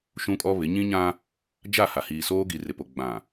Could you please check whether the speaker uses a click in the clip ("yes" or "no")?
no